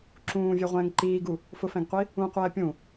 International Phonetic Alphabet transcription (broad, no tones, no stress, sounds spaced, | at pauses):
ǁ ũː vʲ ɛ ʁʷ ɛ̃ː ŋ ǃ iː ɡ u | f ʊ f ɛ̃ ɡ qʷ i | ũ qʷ ɛː pʲ ũ